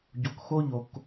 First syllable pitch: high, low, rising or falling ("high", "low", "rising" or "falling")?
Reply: low